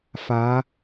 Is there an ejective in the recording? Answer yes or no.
no